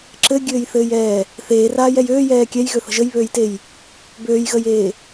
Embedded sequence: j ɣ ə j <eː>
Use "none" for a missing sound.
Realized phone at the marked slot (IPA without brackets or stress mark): eː